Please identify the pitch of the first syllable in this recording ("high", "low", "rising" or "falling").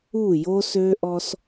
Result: falling